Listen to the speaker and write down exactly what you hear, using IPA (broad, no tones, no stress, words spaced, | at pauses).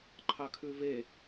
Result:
ǃʰɑkʰʉve